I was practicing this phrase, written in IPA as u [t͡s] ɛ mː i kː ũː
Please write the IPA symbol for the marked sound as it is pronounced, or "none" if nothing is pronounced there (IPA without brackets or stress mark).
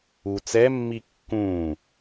t͡s